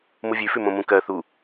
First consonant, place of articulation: labial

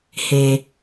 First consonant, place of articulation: glottal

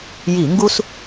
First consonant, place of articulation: palatal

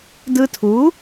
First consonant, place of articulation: alveolar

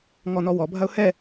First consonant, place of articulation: velar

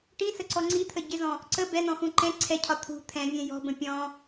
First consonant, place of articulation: retroflex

